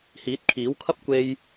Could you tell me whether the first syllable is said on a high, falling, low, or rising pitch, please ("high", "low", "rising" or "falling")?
rising